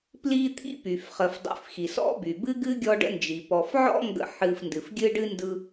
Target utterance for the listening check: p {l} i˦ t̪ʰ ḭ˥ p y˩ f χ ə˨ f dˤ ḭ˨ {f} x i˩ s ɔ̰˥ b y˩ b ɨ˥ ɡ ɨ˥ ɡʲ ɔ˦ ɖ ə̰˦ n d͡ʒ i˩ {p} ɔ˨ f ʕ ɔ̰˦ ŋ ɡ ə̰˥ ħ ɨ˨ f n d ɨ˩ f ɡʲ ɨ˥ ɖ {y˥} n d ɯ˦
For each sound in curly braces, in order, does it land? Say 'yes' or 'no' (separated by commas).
yes, yes, yes, no